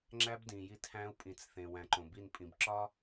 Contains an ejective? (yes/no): yes